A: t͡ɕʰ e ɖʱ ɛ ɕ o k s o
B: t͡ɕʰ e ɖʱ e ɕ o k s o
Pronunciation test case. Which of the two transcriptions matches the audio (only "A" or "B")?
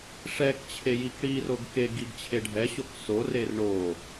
A